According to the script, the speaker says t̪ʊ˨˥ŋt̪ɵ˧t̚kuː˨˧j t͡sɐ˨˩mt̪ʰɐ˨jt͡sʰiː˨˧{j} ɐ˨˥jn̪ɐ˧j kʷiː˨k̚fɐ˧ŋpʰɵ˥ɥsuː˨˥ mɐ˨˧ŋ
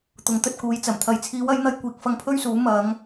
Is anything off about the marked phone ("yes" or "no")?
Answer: yes